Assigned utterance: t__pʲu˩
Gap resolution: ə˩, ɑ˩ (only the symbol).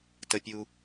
ə˩